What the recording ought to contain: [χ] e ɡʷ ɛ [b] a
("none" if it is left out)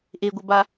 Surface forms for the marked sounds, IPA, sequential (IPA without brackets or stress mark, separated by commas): ʔ, b